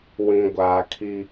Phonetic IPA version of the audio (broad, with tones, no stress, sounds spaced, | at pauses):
w ĩ˨ ɡʷ aː˨ kʰ i˦